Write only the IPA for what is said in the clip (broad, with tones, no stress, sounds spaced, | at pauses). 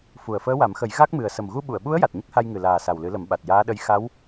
f u˨˩ ə̯ f əː˧˥ w a˨˩˦ m x ə˨˩˦ j ɣ a˦˥ k̚ m ɨ˨˩ ə̯ s ə˨˩ m ɣ u˧ ɓ u˨˩˨ ə̯ ɓ u˧˥ ə̯ j a˨˩ t̚ ɲ ə˦˥ k̚ h a˧ j ŋ ɨ˨˩ l aː˨˩ s a˨˩ w l ɨ˨˩˦ l ə˨˩˦ m ɓ a˨˩ t̚ j aː˧˥ ɗ ə˧˥ j x a˧˥ w